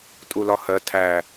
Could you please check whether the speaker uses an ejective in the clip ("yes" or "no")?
yes